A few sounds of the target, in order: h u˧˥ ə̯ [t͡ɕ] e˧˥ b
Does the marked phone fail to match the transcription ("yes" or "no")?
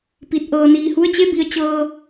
no